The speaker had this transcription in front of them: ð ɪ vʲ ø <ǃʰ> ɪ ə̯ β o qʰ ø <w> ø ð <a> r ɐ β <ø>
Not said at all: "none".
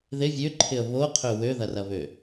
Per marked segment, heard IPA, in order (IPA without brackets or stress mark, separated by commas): ǃʰ, w, ɐ, ø